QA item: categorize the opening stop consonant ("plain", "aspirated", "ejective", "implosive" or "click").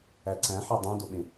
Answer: click